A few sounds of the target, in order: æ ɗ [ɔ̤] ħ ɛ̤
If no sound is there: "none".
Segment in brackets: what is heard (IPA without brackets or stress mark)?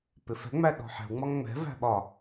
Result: ɔ̤